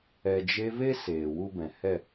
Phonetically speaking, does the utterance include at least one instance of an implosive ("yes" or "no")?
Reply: no